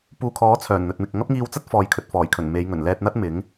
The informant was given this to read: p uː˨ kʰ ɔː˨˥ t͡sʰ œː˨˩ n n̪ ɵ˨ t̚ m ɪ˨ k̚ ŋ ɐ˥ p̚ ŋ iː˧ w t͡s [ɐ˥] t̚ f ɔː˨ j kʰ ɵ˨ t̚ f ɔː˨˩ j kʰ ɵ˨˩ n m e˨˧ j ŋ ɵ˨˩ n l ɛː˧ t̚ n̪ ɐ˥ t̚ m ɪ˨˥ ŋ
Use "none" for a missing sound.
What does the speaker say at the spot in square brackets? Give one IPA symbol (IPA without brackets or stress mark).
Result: ɐ˥